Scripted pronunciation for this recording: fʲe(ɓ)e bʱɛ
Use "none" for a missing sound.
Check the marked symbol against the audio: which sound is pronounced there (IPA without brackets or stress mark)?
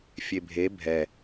bʱ